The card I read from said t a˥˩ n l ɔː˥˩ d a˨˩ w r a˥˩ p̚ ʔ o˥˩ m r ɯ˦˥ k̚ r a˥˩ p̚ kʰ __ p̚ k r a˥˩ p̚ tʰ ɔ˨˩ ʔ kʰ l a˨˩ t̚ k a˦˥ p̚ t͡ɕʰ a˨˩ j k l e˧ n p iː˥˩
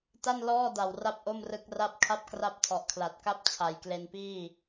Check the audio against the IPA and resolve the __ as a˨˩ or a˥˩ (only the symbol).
a˥˩